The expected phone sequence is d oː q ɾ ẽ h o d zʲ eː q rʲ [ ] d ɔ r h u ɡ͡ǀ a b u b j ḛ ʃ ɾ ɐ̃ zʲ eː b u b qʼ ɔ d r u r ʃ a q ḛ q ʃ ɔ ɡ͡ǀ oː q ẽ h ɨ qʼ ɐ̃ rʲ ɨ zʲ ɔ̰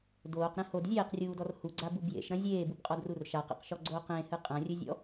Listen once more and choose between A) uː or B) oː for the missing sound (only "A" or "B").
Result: A